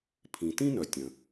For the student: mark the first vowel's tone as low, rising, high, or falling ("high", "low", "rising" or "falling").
low